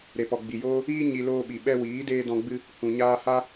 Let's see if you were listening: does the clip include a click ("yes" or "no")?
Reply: no